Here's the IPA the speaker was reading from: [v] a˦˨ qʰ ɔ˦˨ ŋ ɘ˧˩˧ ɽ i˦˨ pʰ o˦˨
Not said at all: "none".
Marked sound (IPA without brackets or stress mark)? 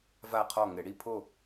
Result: v